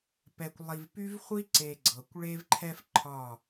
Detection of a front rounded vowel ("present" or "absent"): present